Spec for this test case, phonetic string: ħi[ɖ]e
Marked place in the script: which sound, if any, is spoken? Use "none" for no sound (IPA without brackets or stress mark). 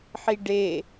ɖ